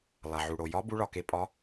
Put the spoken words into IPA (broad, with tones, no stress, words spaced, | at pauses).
lˠa˩ʕu˩ɽo˩ jɒ˨˦ bu˨˦ɭɒ˩ke˨˦ pʼɒ˨˦